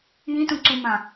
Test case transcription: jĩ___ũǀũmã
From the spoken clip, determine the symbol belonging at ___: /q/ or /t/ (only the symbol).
t